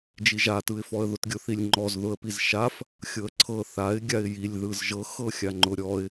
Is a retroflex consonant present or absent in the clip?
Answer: absent